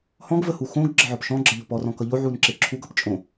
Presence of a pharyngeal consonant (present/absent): present